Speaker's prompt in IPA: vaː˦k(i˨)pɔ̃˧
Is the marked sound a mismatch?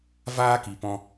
no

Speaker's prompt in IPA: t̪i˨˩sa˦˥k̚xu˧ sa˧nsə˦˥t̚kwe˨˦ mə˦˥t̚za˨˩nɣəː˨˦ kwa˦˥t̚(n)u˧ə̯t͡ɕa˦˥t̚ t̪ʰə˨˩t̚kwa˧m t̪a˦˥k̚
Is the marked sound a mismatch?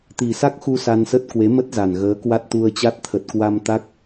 yes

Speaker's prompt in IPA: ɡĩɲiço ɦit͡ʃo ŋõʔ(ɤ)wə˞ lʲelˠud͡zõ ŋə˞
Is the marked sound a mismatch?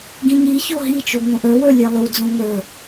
yes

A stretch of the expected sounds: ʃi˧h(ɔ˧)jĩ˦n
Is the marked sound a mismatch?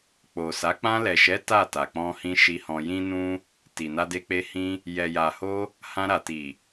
yes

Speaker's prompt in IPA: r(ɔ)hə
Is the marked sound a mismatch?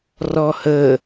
no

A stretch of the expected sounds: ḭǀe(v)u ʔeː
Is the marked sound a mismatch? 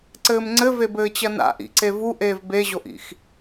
no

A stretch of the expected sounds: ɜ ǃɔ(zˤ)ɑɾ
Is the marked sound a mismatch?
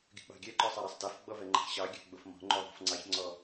yes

